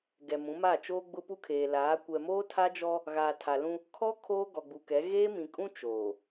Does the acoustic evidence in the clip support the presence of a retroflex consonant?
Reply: no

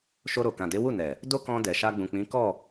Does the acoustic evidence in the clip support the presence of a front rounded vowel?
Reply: no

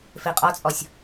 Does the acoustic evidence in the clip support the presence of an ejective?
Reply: yes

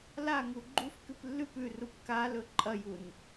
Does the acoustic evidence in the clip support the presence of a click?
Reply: yes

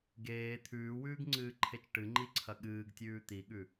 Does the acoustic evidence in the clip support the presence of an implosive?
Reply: yes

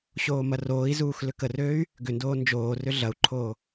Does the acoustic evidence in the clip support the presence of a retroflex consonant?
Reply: no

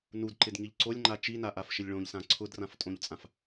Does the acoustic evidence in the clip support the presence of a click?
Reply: yes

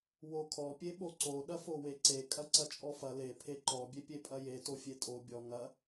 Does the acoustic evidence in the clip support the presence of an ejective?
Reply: yes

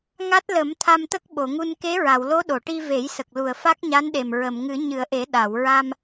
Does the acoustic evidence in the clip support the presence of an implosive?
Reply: yes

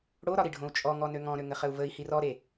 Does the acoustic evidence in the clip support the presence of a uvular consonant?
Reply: yes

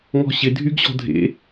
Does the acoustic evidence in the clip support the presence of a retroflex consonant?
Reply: no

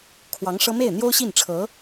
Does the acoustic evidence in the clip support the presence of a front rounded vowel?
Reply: no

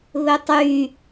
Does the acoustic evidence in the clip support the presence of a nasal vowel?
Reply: no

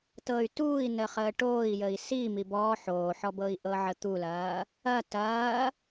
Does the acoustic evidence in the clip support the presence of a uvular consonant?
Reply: yes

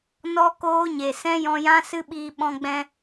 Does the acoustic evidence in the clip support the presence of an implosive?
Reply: yes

